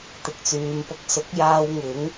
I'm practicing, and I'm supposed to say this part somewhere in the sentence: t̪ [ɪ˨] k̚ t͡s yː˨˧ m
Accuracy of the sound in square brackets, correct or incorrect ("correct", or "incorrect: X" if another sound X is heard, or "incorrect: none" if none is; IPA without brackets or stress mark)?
correct